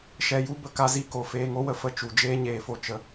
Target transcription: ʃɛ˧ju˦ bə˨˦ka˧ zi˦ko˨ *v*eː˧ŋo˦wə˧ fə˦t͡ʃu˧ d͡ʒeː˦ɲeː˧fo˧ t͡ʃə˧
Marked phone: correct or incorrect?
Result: incorrect